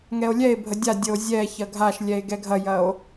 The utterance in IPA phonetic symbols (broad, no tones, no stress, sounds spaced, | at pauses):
ŋ ɛ o̯ lʲ ɛ e̯ bʱ ə dʲ a dʲ ə o̯ zʲ ɛ ç ɐ ɡʱ a ʃ lʲ ɛ e̯ ɡ ɛ ɡʱ ɐ j ɐ o̯